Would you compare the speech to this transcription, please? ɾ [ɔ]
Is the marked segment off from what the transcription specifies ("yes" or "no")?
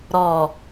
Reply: no